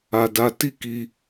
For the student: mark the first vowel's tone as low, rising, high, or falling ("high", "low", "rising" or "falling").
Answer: low